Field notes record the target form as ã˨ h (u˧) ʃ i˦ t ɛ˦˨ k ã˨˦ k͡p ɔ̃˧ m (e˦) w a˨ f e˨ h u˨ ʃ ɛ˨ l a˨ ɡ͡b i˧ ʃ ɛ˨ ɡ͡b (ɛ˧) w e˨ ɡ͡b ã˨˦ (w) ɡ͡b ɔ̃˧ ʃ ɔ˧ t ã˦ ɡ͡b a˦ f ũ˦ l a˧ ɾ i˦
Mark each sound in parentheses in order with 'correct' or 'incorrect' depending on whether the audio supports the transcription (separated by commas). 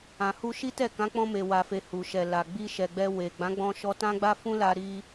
correct, incorrect, correct, incorrect